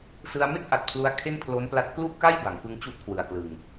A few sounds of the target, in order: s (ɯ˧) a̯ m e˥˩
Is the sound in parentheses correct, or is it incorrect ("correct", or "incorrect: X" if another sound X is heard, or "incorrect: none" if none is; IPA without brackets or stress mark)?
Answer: correct